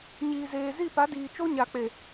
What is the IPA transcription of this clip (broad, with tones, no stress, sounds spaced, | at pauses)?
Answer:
ɲ iː˨ z eː˨ z i˦˨ p a˨˦ d iː˨ t͡ʃ o˦ ɲ a˨ k͡p e˨